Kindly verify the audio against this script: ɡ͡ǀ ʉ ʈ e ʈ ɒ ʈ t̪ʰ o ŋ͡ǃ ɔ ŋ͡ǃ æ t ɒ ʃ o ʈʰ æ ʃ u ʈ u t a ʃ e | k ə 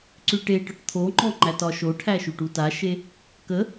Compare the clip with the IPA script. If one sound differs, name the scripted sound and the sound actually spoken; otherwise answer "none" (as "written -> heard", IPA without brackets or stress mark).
ɡ͡ǀ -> ǀ